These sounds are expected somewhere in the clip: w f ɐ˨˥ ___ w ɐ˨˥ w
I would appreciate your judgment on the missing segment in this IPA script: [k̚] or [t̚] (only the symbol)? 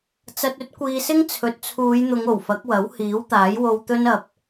k̚